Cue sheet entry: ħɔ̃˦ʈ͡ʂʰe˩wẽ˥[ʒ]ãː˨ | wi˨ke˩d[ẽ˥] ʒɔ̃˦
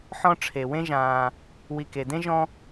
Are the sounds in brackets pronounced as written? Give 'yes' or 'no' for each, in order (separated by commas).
yes, yes